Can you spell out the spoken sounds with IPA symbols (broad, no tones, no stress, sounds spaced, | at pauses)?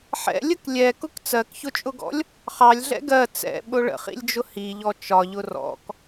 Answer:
ħ ɛ̰ lʲ ə k lʲ ɛ k ʊ k t͡s ɜ k ç ʊ t͡ʃʼ ʊ ɡ ɔ̰ lʲ | χ ɑ lʲ ɮ ɛ̰ ɡ ɜ t͡s ɛ̰ ɓ ʊ ɭ ə̰ χ ḭ lʲ d͡ʒ ʊ h i ʎ ɔ t͡ʃ ɒ ʎ ʊ r ɔ̰ k